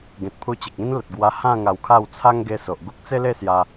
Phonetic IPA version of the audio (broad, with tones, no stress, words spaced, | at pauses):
ɡẽ˨t̚pʰu˧t͡ɕe˨k̚ĩ˦n lə˨t̚ ɡwa˧hã˥˧ ŋa˧wkʰa˥˧w t͡sʰa˦ŋɡe˧ so˨ʔɡu˦k̚ t͡se˦le˥˧ sja˧